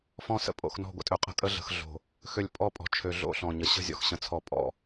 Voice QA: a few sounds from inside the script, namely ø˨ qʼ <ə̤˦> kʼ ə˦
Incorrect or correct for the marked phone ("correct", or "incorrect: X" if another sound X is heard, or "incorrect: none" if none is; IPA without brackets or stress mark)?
correct